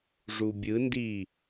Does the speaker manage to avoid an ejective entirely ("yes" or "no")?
yes